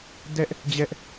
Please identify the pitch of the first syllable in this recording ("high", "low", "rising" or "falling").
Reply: high